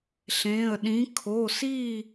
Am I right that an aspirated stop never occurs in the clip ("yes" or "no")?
no